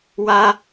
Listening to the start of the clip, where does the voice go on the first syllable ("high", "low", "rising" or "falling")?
high